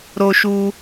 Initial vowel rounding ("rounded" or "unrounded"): rounded